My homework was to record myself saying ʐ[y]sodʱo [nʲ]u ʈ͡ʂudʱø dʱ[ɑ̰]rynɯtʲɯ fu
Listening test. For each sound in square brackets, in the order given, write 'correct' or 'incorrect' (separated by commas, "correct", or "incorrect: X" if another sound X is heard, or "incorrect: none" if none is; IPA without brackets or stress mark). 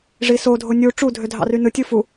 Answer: incorrect: i, correct, correct